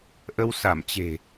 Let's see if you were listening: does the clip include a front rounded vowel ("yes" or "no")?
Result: no